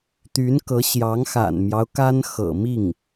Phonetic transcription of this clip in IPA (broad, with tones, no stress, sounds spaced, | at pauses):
t̪ y˧˥ n k ɤ˧˥ ɕ j ɑ˧˥ ŋ x a̰˨˩ n m j ɑ˦ ʊ̯ k a˥ n x ɤ̰˨˩ m i˥˩ ŋ